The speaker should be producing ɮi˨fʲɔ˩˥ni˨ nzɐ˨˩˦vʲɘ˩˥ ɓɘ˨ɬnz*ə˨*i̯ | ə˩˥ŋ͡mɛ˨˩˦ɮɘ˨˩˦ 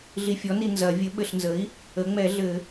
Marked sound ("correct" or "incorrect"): incorrect